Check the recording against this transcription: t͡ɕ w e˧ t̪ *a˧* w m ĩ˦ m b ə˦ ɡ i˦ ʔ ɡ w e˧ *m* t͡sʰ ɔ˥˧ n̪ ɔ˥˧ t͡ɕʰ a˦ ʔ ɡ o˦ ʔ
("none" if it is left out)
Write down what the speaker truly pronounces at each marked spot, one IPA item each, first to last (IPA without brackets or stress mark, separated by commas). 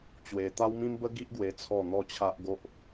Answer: a˦, none